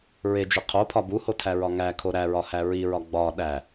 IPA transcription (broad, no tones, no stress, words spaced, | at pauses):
ɹed͡ʒe qʰopʰɒ buhotʰæɹɒ ŋækʰo ɾæɹɒhæ ɹiɹɒ ɡ͡bɒ ɗæ